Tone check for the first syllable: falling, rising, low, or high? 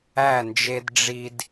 falling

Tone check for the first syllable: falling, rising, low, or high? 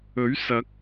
rising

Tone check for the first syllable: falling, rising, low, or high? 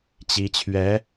rising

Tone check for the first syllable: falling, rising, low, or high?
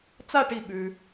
falling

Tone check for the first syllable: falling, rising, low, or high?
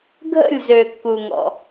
falling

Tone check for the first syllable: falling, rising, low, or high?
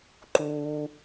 low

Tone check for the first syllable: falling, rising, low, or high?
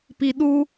low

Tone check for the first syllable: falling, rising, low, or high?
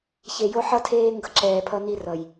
low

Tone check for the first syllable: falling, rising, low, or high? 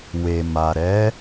low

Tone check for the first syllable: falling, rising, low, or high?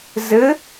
rising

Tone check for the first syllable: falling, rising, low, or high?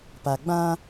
low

